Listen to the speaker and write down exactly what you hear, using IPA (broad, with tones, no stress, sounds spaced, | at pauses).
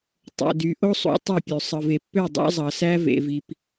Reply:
tˤ o̰˨ d y˨ ʔ o˦ sˤ ṵ˨˦ tˤ o˦˨ pʲ ø˨ sˤ ɯ˨ v e˨ pː ø˦˨ dˤ ɑ̰˦ zˤ ɑ˨ s æ˦ v ḛ˦ v i˦ p